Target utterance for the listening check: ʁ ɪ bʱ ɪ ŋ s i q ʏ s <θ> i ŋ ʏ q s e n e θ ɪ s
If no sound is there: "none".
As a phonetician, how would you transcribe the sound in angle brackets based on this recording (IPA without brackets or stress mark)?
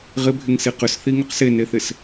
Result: θ